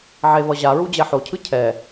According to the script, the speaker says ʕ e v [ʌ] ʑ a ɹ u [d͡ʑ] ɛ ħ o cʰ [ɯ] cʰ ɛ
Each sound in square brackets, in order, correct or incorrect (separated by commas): correct, correct, correct